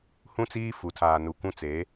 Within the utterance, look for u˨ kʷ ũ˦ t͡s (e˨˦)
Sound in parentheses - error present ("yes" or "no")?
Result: no